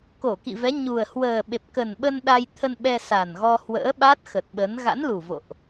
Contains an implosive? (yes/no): yes